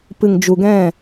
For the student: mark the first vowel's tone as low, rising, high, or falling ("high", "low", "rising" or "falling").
low